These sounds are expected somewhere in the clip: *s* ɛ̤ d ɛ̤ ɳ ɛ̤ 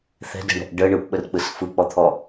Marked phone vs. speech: incorrect: θ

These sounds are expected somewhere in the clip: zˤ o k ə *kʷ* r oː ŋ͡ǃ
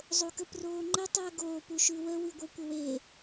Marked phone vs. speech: incorrect: p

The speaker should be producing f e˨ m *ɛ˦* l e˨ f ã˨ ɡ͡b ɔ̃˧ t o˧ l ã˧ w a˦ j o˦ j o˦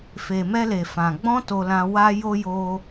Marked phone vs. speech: incorrect: ɛ˧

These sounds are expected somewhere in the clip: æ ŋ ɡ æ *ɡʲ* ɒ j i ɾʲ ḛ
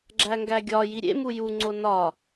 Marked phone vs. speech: correct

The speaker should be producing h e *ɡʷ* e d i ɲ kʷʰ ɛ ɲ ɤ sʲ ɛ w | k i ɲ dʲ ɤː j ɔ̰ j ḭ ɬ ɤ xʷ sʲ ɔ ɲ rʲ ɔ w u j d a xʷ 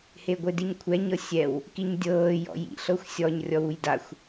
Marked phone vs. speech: correct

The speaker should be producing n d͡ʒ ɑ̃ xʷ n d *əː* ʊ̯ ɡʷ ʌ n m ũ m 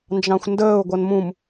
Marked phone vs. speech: correct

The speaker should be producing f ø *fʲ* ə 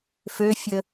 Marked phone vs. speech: correct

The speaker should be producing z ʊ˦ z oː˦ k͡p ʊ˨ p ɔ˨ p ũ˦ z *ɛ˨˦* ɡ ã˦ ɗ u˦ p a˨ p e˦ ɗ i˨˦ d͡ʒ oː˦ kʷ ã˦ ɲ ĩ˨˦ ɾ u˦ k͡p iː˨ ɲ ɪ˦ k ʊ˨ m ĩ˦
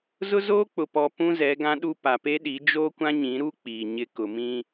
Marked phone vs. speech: correct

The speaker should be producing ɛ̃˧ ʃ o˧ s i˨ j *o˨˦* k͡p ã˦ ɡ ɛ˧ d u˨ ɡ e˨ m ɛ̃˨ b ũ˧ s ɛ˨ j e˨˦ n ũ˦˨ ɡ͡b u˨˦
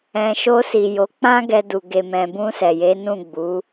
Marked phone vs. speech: correct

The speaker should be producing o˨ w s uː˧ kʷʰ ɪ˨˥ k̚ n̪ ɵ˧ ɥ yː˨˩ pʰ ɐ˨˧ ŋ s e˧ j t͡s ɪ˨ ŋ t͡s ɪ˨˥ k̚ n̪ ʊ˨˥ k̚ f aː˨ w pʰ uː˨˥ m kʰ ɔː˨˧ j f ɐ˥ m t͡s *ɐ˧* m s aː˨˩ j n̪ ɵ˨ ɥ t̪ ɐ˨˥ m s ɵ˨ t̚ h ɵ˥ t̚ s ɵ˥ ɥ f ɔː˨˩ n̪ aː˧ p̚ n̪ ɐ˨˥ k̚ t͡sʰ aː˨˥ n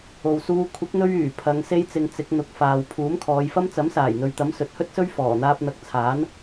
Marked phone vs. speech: incorrect: ɐ˨˥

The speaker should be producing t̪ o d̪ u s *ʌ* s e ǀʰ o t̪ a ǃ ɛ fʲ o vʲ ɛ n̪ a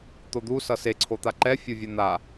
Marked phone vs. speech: correct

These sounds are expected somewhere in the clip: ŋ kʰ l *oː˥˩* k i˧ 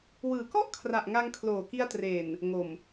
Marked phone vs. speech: incorrect: oː˨˩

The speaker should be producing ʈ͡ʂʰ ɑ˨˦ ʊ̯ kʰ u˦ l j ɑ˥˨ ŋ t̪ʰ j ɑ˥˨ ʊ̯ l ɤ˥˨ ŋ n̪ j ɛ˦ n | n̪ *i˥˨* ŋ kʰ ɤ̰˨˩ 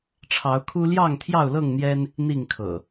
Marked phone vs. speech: correct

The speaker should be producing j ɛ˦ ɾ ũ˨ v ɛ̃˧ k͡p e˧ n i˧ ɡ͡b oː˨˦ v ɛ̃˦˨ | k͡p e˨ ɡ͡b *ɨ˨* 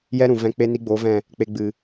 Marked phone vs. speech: correct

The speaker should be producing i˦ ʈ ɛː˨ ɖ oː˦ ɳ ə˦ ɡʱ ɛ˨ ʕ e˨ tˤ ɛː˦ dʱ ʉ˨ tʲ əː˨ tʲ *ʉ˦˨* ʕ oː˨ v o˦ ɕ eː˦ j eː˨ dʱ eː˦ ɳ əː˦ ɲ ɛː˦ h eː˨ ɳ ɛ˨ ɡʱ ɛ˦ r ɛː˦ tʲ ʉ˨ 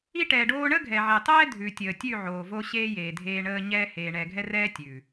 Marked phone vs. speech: correct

